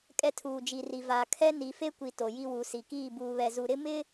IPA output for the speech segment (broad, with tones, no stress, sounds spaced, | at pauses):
kʼ ɛ˦ tʰ uː˨ d͡ʒ i˨ r i˨ v a˨ kʰ ɛ˦ n i˨ f e˦ kʷ i˨ t o˨ j i˦ w u˨˦ s i˨ k iː˦˨ b uː˨ β ɛ˨ z u˨ ɾ ɪ˦ m ɪ˦